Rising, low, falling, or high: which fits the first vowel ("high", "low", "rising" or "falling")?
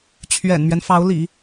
low